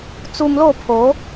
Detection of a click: absent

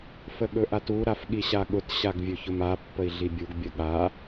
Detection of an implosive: present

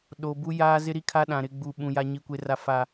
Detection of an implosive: present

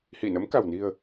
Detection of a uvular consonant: absent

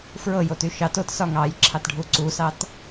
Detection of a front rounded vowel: present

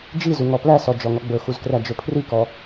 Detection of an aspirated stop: present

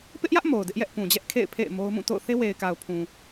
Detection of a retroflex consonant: absent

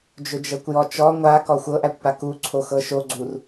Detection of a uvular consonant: absent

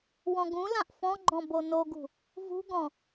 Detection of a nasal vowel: present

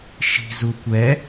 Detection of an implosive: absent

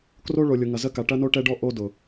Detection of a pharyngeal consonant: absent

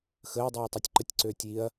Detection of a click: present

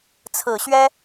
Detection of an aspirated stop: present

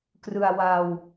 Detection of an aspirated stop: absent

